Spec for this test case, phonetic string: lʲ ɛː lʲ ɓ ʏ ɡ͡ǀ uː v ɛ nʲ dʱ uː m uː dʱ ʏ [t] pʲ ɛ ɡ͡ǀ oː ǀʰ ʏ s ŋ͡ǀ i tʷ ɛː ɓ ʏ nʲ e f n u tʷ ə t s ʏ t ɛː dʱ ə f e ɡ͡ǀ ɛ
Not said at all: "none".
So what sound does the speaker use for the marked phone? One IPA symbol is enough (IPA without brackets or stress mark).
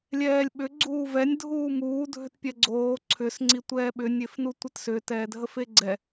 t